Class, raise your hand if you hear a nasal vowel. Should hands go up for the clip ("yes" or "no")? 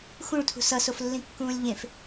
yes